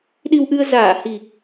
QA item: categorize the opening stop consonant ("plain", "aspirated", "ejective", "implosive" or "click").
implosive